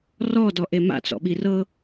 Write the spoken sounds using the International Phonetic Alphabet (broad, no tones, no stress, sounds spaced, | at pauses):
r ɔ d ɔ ʔ e m a̰ t͡s ɔ̰ ɓ i r ɤ